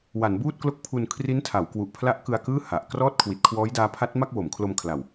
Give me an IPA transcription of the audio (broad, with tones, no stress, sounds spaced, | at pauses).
w a˩˦ n b uː˥˩ t̚ k l o˦˥ k̚ pʰ u˧ n kʰ r i˦˥ n tʰ a˩˦ w k w u˨˩ ʔ pʰ l a˦˥ ʔ k ɯ˧ a̯ k ɯː˥˩ h a˨˩ ʔ k r ɔː˥˩ t̚ kʰ w i˨˩ t̚ kʰ w ɔː˦˥ j d aː˦˥ pʰ a˦˥ t̚ m a˥˩ k̚ w o˩˦ m kʰ l o˧ m kʰ l a˨˩ w